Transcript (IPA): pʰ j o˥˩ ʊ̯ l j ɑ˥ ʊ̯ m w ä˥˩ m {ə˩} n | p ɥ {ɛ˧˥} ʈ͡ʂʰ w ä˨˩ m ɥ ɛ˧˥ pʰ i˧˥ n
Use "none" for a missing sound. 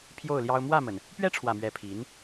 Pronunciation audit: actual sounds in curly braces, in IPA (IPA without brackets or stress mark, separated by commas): ə˩, ɛ˥